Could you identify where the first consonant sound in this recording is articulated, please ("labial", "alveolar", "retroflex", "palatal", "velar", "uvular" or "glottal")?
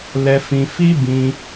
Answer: alveolar